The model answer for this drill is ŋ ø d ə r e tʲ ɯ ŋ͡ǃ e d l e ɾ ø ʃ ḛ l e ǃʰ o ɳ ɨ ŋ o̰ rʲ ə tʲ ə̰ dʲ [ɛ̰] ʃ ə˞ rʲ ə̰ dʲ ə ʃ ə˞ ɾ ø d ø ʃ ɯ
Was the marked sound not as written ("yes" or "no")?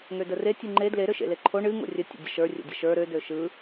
yes